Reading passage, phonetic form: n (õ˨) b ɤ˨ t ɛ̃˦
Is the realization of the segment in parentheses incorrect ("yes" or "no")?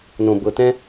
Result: no